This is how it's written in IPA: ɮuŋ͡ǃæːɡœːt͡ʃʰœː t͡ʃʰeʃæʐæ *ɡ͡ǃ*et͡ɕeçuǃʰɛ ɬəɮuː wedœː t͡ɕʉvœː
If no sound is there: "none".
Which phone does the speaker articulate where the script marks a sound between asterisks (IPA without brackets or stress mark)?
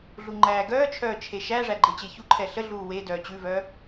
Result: ɡ͡ǃ